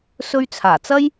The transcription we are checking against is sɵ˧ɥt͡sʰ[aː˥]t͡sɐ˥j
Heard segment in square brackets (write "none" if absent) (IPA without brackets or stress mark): aː˨˩